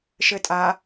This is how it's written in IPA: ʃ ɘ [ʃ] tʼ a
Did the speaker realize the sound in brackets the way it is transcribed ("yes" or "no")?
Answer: no